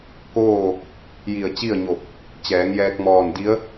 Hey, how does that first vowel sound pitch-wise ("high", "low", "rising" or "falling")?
falling